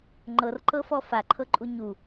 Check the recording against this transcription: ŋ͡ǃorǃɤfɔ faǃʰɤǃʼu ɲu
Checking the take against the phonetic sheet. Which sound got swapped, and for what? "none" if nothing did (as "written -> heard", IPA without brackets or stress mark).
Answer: o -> ɤ